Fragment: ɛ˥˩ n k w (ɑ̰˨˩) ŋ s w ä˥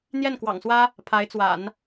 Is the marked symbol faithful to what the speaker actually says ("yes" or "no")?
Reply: yes